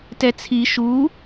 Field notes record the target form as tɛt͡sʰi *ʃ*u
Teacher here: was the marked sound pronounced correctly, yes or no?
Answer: yes